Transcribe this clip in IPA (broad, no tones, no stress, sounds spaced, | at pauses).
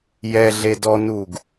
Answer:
j ɛ ɮ e d ɔ n u ɡ